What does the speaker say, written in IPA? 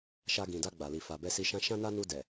ʃ a˧ ɡ ĩ˨ d a˧ ɡ͡b a˨ l i˨ f a˨ b ɛ˧ s i˧ ʃ ã˦ ʃ ã˦ n a˦ n u˧ d ɛ˨

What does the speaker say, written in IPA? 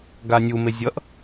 ɡ a nʲ u m e zʲ ʌ ʔ

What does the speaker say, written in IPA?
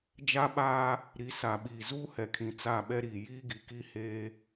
d͡ʒ a˦ ɓ aː˦ | ɾ i˨˦ s a˨ ɓ iː˨ z uː˦ h ɛ˨ kʰ ĩ˨ t͡s a˦˨ ɓ ɛ˦ ɾ iː˨ j iː˦ ɡ i˨ k i˦ h eː˦

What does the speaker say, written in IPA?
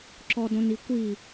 ǁ ɔ d õ n i kʷ i

